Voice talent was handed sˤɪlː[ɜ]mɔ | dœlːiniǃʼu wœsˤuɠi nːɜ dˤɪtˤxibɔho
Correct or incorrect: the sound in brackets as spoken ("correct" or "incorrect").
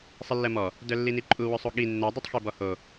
correct